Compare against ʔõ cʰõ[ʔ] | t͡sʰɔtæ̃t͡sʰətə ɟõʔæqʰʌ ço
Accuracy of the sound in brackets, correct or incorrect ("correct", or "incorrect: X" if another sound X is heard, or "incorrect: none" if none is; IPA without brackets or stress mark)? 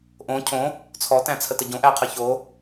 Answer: incorrect: none